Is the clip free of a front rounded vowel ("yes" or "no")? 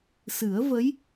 yes